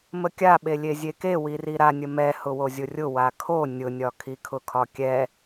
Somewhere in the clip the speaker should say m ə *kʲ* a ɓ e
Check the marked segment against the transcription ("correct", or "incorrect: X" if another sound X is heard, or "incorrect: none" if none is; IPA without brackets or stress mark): correct